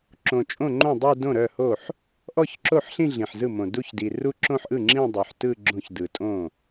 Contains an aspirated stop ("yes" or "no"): no